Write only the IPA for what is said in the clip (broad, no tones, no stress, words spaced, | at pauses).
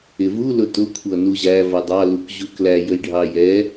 ɪvu lʊtʊ kʷʰʌnuʑæ vʌdˤɑ lukʑuklæ jəjɖʱɑjɛ